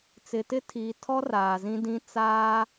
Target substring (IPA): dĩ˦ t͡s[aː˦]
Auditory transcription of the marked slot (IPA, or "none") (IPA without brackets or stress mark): aː˦